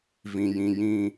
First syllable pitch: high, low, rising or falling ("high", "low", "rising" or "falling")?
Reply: low